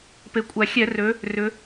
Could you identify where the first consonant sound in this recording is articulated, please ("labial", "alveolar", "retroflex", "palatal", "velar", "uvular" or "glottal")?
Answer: labial